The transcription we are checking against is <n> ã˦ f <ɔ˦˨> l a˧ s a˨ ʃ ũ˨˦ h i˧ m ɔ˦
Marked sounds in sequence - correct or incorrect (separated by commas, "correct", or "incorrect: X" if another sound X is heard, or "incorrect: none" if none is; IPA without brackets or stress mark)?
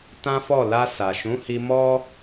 incorrect: t, correct